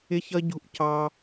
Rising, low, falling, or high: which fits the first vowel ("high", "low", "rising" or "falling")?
high